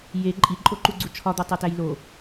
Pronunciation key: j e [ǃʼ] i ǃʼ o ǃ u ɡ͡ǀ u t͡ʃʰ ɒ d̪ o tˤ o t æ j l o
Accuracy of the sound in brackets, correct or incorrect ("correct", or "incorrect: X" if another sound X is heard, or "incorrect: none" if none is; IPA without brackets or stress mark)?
correct